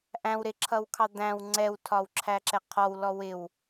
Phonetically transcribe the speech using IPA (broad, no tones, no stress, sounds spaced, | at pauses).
ʔ æ̃ w ɾ ɪ ǁʰ ʌ w kʰ ɑ d̪ æ̃ w ŋ͡ǀ ɛ w tʰ ɒ w ǁʰ æ ǁ ɛ qʰ ɔ w l ɔ w ɪ w